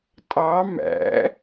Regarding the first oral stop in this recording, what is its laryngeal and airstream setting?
ejective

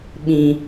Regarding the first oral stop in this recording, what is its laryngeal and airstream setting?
implosive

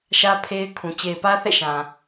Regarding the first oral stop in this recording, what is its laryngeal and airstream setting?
aspirated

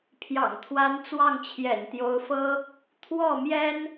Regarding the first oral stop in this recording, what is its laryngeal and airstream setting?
aspirated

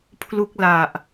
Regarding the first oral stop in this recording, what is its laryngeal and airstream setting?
aspirated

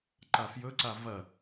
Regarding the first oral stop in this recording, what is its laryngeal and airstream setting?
click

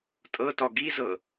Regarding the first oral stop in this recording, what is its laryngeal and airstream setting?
ejective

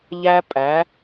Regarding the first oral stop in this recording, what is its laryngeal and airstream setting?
ejective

